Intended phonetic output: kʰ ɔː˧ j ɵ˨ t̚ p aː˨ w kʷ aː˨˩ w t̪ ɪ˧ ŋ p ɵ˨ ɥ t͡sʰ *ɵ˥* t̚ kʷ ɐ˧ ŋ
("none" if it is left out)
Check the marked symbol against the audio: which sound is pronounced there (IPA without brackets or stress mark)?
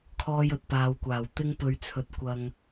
ɵ˨